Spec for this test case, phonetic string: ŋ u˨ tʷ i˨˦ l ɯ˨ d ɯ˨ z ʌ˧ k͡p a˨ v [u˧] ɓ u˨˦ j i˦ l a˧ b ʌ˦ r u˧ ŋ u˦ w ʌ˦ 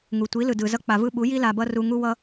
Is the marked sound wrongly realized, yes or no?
yes